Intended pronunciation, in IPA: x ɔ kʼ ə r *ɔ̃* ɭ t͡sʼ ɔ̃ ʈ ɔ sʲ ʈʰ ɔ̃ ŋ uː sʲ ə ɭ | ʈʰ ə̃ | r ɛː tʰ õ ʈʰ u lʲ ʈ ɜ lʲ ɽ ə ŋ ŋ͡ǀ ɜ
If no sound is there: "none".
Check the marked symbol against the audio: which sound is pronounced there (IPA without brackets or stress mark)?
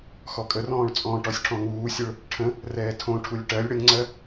ɔ̃ː